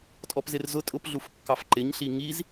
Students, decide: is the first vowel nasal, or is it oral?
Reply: oral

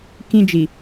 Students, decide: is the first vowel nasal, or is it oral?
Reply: nasal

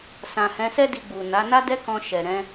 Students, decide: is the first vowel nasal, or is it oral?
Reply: nasal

